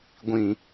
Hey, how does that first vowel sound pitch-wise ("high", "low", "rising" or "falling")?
low